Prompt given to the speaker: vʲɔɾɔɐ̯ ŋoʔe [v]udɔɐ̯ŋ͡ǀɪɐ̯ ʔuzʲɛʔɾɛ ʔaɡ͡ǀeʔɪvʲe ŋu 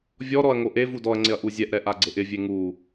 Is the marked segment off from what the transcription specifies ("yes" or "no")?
no